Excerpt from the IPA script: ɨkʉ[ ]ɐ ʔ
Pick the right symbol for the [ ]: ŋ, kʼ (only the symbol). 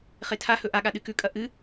kʼ